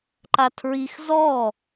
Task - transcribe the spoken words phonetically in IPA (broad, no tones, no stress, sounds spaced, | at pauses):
ǃ a tʰ ɹ i x z ɔ